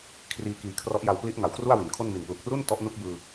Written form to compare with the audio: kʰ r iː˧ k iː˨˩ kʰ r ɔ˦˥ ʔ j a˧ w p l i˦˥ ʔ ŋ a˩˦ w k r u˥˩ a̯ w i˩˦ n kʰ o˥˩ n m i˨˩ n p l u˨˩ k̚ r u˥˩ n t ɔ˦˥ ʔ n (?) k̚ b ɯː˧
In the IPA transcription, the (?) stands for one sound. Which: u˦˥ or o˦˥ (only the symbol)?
u˦˥